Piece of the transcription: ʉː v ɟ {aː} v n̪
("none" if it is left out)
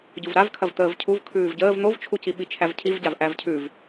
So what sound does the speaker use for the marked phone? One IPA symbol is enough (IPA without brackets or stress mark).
əː